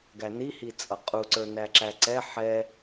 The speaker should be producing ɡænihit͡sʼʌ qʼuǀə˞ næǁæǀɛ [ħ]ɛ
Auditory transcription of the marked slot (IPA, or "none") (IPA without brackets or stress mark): ħ